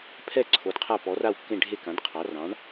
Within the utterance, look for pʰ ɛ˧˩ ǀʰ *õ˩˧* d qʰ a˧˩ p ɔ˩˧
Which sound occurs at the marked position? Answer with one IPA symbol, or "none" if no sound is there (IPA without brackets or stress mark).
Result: o˩˧